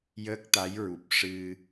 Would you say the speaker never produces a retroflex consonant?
no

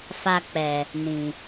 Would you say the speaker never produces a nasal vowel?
no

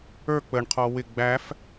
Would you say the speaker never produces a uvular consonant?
no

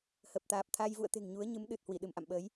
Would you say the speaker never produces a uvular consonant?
yes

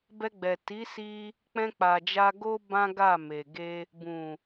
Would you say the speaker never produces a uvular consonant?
yes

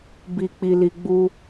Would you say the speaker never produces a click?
yes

